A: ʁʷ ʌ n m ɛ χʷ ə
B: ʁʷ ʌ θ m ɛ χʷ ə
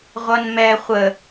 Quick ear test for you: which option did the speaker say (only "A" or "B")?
A